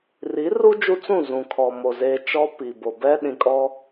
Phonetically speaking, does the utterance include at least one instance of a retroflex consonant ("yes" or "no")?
no